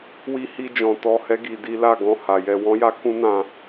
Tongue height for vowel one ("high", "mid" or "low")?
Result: high